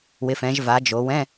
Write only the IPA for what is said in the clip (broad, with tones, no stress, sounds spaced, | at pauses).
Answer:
w ɪ˩˧ f ɛ̃˩˧ ʒ v a˩˧ d͡ʒ o˩˧ w ɛ̃˧˥˧